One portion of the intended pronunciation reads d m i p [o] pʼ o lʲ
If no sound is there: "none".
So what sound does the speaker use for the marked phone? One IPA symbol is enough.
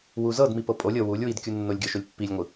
ɤ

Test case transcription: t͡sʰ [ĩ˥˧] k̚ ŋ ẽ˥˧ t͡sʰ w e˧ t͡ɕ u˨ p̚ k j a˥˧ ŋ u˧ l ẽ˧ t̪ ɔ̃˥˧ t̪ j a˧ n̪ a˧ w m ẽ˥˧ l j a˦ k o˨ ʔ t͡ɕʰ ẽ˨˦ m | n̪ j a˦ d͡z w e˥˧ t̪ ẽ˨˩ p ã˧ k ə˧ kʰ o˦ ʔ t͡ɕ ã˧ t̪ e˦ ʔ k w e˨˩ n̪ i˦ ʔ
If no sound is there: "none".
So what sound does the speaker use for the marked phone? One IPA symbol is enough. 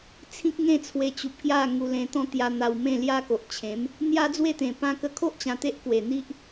ĩ˦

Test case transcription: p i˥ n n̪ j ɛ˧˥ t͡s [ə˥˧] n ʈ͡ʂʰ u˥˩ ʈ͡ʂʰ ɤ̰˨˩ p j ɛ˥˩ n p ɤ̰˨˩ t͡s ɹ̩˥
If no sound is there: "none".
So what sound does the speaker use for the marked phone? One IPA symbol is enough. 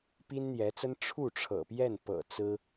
ə˥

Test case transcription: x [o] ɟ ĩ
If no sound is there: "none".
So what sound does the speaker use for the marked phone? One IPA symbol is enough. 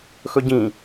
ɵ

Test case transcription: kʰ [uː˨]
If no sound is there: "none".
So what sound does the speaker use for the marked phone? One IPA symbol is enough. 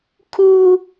uː˦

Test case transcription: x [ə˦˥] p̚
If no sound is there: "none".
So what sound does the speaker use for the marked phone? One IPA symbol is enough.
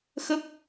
ə˦˥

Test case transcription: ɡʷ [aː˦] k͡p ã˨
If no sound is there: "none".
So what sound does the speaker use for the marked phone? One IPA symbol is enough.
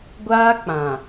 aː˦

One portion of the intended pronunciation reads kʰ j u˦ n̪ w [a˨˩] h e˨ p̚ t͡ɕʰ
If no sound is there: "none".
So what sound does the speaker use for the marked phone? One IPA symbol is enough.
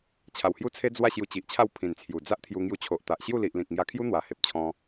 a˨˩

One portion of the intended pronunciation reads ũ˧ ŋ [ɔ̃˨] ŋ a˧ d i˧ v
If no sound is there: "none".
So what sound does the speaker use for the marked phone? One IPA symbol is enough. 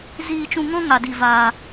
ɔ̃˦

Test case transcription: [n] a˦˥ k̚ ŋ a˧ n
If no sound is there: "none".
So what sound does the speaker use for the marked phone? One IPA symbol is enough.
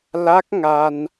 l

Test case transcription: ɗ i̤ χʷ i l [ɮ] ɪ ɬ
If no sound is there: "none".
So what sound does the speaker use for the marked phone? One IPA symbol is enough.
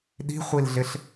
ɮ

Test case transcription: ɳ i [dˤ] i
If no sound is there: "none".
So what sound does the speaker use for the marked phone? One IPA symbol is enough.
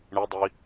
dˤ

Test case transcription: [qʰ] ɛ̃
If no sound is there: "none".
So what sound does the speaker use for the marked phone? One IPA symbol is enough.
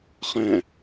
χ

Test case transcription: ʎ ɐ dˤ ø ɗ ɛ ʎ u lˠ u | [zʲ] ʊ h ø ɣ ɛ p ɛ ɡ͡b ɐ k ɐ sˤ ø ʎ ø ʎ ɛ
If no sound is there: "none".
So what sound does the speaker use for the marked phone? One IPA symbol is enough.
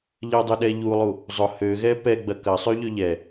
zˤ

